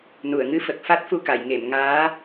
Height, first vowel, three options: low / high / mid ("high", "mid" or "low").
high